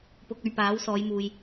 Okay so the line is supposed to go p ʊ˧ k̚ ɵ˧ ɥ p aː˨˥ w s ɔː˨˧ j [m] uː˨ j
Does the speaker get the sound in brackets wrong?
no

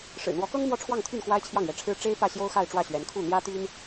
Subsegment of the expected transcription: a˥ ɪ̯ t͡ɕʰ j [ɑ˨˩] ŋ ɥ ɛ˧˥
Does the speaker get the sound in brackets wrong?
yes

